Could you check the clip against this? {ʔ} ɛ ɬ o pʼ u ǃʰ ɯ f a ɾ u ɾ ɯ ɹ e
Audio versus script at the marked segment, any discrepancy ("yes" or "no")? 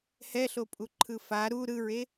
yes